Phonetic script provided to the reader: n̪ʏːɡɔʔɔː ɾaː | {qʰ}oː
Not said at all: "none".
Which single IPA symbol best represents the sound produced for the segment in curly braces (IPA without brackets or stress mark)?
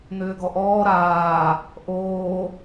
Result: ʔ